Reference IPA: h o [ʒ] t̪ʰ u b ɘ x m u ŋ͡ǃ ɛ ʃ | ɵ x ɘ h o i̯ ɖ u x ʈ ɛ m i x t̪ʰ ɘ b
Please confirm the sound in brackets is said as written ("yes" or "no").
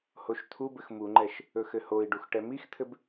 no